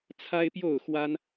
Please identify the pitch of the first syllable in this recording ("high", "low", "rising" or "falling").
high